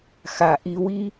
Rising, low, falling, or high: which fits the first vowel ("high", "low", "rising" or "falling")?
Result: low